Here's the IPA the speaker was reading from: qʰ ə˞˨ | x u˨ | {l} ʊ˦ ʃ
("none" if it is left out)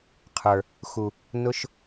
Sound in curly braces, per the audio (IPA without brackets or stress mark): n